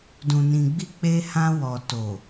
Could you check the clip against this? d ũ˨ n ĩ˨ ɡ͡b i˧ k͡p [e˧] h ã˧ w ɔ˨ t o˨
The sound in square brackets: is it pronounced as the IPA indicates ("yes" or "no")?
yes